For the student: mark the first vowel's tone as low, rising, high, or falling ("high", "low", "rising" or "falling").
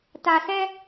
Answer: low